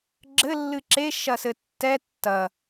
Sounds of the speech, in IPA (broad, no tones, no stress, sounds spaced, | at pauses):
ɡ͡ǁ ɘ lː ɨ ǁ e ʃ ɐ s ɘ tː ɛ tː ɐ